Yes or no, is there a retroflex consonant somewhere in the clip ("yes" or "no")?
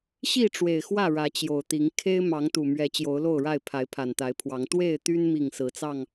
yes